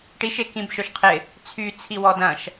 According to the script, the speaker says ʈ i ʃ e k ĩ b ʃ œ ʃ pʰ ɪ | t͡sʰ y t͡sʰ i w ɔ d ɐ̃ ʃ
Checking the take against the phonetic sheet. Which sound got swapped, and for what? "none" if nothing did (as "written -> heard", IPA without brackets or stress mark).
pʰ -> qʰ